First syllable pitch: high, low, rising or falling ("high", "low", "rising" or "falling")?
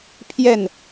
falling